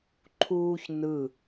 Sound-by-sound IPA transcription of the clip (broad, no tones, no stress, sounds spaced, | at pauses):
ǃʰ uː ç n ɯ